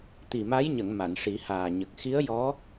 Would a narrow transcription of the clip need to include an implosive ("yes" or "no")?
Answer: no